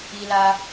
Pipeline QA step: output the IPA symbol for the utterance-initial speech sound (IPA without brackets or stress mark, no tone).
i